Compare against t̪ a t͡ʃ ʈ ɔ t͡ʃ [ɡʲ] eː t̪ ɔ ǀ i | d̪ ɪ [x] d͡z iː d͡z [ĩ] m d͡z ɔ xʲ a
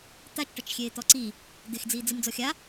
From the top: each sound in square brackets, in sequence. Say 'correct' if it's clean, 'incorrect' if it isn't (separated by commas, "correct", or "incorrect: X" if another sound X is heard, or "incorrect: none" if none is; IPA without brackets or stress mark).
incorrect: xʲ, correct, incorrect: i